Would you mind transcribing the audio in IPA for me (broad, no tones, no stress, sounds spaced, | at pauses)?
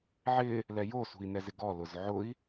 ʕ ɪ | l ɛ j o s ṳ i̯ n ɛ z ɪ ɡ ɔ l ʊ z ʕ ʊ i̯